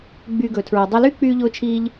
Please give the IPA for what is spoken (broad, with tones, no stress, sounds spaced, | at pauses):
ɡ͡b yː˧ ɡ ɵː˨ tʰ ɹ i˨ dˤ e˧ l y˦ k͡p yː˦ ʎ ʊː˦ t͡ʃʰ iː˦ ʎ